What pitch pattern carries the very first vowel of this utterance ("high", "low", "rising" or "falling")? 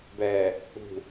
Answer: low